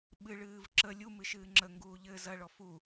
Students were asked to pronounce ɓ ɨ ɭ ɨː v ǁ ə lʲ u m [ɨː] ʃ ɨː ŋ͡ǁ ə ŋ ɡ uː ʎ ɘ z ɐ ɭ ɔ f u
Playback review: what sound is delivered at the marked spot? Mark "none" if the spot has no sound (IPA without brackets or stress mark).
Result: ɨ